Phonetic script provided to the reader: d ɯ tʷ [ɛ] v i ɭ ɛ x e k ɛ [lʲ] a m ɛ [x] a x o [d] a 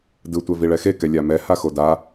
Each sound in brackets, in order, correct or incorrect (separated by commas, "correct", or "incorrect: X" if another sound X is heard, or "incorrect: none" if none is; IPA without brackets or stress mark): correct, correct, incorrect: h, correct